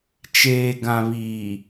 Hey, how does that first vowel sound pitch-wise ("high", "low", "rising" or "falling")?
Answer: low